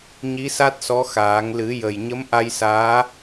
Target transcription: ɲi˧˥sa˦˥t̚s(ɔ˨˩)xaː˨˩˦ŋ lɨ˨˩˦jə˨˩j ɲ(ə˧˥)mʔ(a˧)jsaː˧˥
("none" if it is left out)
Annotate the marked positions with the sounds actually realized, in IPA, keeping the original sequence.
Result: ɔ˧˥, ə˧˥, a˧

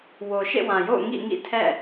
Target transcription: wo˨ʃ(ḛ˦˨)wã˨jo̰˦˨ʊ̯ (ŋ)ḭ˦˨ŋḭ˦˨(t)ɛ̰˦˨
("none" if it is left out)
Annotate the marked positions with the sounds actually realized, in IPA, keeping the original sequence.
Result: ḛ˦˨, ŋ, tʰ

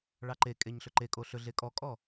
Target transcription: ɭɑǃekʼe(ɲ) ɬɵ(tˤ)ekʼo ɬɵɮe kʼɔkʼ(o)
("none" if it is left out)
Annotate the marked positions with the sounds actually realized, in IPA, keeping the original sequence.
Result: ɲ, ǃ, ɔ

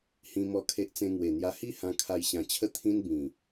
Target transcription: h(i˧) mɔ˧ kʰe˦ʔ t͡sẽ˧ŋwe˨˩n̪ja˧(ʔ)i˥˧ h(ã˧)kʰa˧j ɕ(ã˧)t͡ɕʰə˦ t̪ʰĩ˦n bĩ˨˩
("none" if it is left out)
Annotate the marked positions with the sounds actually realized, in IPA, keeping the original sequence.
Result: ĩ˧, h, ã˧, ã˧

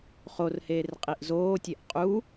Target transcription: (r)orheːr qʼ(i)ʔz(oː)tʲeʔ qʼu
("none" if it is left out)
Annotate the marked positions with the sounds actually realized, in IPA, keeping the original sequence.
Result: χ, i, oː

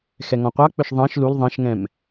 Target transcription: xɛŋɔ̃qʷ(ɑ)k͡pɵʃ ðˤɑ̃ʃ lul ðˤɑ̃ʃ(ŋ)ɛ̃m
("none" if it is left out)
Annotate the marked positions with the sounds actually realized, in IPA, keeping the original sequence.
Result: ɑ, ŋ

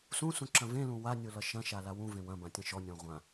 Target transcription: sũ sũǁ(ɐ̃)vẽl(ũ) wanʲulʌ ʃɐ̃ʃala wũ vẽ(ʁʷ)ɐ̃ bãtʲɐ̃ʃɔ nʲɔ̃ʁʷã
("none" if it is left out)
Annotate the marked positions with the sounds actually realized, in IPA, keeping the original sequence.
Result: ɐ̃, ũ, w

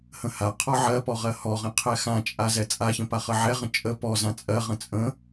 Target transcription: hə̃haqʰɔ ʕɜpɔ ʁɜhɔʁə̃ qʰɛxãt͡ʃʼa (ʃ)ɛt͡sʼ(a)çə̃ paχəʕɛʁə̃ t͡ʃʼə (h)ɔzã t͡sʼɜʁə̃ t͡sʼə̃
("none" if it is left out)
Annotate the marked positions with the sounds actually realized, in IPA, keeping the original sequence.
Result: z, a, p

